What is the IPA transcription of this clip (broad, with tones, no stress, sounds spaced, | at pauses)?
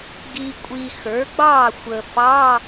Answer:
ɡ i˨ kʷʼ i˨ x ə˞˩˥ ɡ͡b ɑ˥˩ xʷ ə˨ f ɑ˧˥˧